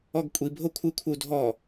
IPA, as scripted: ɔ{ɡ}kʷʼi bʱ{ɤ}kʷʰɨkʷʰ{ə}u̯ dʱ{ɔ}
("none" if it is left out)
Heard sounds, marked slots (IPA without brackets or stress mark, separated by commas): ɡ, o, ə, ɔ